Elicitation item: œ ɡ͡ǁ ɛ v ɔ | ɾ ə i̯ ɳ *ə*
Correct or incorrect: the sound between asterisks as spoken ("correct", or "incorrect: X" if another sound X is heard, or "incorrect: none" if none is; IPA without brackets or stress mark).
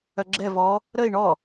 incorrect: ɔ